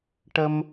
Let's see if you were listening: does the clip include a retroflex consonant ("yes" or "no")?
yes